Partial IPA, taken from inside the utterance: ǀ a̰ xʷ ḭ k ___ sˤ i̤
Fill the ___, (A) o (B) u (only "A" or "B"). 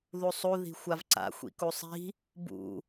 B